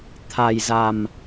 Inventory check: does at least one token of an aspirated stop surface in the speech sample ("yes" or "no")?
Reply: yes